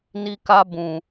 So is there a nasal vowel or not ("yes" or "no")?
yes